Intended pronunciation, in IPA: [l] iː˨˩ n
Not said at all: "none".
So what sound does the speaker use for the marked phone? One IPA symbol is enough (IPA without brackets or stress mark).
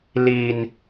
l